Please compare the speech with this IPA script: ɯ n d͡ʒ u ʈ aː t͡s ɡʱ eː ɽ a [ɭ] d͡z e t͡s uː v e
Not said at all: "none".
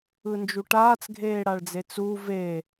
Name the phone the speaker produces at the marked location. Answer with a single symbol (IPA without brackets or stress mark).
ɭ